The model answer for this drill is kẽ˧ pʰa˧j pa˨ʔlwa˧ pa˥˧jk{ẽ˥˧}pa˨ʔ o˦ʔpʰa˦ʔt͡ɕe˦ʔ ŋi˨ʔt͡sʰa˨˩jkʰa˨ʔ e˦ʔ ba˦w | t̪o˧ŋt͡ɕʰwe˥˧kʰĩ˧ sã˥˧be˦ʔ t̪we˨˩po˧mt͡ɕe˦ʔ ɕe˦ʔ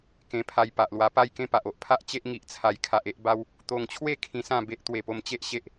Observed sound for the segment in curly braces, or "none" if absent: ẽ˥˧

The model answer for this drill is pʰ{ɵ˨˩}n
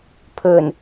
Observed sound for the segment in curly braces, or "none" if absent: ɵ˨˩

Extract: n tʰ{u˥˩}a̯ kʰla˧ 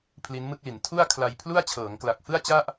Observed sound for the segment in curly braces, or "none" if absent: u˥˩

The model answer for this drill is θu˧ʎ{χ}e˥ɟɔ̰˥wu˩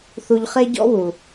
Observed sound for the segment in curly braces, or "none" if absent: χ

